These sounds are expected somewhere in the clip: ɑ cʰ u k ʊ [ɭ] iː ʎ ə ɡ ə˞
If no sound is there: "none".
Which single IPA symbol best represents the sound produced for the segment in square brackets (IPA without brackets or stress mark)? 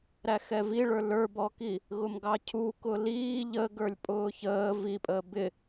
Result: l